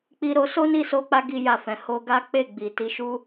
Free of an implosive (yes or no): yes